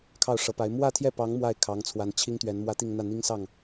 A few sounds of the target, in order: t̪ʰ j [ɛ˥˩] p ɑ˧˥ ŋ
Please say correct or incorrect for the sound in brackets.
correct